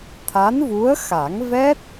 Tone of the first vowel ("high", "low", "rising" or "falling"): rising